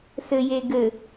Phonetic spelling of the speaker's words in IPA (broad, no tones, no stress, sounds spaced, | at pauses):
s ɘ j e ɡ ɘ